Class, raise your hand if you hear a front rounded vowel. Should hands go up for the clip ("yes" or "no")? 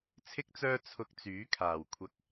yes